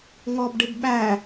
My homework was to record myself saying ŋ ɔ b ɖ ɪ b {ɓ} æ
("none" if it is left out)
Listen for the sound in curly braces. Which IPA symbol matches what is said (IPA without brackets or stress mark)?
ɓ